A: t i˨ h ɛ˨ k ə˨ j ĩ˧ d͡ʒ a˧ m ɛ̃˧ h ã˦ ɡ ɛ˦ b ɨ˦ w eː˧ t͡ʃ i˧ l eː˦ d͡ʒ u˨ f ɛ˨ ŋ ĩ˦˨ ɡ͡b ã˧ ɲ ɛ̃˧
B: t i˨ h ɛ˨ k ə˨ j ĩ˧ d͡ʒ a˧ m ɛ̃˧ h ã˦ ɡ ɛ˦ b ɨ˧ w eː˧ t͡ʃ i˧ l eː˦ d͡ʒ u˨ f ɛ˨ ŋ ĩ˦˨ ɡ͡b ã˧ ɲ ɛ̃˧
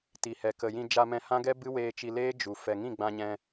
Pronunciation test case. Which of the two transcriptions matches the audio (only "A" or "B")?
A